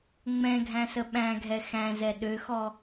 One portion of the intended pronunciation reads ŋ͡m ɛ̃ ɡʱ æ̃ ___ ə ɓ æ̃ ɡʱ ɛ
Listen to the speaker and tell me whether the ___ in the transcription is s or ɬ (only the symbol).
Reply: s